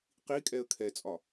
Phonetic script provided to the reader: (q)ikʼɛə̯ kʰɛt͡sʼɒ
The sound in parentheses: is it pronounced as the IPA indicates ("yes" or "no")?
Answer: yes